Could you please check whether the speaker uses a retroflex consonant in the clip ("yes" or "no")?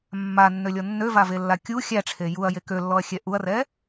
yes